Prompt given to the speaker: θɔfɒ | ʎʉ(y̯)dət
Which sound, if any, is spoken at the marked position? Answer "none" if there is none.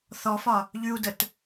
u̯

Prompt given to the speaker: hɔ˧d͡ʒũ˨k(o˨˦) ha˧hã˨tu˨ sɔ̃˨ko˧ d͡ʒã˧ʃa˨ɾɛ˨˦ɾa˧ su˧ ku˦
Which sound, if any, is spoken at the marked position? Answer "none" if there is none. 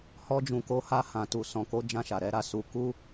o˨˦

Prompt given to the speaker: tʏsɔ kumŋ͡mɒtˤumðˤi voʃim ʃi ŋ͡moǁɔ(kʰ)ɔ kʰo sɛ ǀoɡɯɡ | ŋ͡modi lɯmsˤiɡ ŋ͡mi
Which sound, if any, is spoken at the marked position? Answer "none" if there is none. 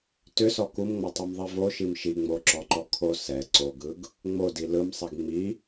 ǃ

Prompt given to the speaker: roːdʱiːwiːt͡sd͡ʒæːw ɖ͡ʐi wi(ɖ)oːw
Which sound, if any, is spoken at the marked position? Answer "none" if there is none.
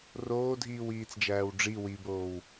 b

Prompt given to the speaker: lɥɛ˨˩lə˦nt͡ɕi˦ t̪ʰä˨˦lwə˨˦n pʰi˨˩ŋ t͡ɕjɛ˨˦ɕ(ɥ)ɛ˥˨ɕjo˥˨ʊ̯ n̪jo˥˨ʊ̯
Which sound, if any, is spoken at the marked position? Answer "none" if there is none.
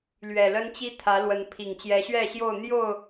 ɥ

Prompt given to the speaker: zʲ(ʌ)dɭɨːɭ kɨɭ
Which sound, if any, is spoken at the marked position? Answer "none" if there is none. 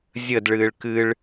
ə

